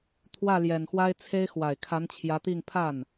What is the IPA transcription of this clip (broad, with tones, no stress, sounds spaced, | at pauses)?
t̪ʰ w ä˥˩ l j ɛ˨˩ n x w a˥ ɪ̯ t͡sʰ e˥ ɪ̯ x w a˨˩ ɪ̯ kʰ a˧˥ n t͡ɕʰ j ä˧˥ t̪ i˥˧ ŋ pʰ a˥˩ n